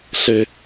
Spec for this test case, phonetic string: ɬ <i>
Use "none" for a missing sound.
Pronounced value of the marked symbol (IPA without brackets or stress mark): e